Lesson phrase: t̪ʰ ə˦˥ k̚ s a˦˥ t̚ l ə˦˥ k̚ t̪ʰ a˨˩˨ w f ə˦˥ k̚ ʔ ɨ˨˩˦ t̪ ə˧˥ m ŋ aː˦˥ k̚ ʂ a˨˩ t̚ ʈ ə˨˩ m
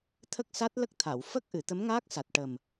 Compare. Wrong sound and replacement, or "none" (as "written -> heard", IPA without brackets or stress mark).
ʂ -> s